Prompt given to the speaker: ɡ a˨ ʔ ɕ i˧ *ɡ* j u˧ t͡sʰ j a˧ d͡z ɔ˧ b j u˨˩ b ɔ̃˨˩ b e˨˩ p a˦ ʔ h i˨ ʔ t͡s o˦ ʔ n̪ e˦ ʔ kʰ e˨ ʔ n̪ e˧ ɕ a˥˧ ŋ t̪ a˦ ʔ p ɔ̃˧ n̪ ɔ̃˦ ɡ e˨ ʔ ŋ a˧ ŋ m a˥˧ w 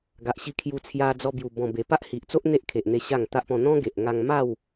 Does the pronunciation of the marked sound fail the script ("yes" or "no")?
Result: yes